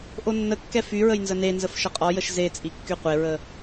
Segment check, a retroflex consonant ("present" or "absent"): absent